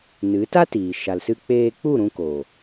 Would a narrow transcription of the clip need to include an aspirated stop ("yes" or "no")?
no